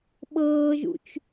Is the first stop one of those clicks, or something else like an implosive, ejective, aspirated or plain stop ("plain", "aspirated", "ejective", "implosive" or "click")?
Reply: implosive